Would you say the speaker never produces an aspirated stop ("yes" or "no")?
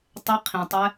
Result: no